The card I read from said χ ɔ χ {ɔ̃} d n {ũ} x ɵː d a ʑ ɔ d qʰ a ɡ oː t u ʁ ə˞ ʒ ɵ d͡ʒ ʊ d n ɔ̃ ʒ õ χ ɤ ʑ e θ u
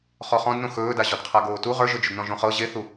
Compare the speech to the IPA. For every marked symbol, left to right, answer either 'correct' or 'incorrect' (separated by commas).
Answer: correct, incorrect